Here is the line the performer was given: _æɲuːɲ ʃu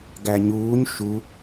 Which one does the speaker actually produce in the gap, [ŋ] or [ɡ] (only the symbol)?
ɡ